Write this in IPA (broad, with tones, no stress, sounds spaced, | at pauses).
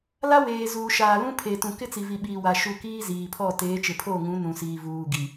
l a˦ w eː˨ z uː˨ ʃ aː˨ l ũ˦ pʰ e˨ t ũ˨ k ɪ˦ t͡s i˨ v i˨ ɓ iː˨ w a˨ ʃ u˨ k iː˦ z iː˨ pʰ ɔ˦˨ t eː˨˦ t͡ʃ ɪ˨ pʰ o˦˨ ŋ ũ˨˦ n ũ˨ s iː˨ v uː˨ ɡ i˨